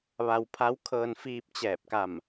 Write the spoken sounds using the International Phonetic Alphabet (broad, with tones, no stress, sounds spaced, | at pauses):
ʋ a˧ w pʰ a˧˥ w kʰ ɤː˧ n f iː˧ p̚ t͡ɕ ɛː˧˩ p̚ k a˧˩ m